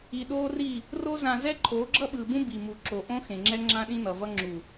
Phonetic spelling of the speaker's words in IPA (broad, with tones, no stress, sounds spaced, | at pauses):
i˨ ɗ oː˦ r i˦˨ | r o˦ z ã˨ z ɛ˦ ǃʰ oː˨˦ ɡ͡ǁ ʌ˦ ɓ ɯː˨ b ũ˦ b i˨ m u˨ ǁ o˨ ʔ õ˦ x ẽ˨ ŋ͡ǁ ɛ˦ ŋ͡ǁ ã˦ ɗ ĩ˦ n ʌ˨ v ʌ˦ ŋ͡ǁ u˨